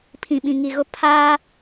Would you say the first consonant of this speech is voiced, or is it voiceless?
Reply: voiceless